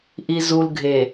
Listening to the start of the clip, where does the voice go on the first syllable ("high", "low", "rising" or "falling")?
low